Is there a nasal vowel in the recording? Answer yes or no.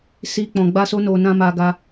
yes